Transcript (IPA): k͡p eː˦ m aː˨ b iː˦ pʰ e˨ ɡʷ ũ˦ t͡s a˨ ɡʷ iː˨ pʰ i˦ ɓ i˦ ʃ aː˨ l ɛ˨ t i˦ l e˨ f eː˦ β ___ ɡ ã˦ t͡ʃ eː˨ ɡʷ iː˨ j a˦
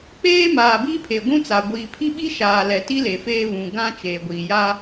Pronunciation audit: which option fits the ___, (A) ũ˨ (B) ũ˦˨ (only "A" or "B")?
A